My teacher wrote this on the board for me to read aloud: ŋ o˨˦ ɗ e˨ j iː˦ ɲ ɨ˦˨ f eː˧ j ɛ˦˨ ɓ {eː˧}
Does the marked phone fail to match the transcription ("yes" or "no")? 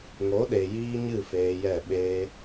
no